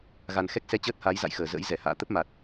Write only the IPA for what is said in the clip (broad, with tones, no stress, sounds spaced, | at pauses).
ɣ a˨˩ n x ɛ˦˥ k̚ s ɛ˧ t͡ɕ əː˦˥ t̚ h a˨˦ j z a̰˧˨ j x əː˧˩ z ə̰ː˧˥ j z ɛ˧˩ h a̰ː˧˨ t̪ ə˦˥ p̚ m a˨˩ t̚